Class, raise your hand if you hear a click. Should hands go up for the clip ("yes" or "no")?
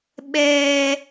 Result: no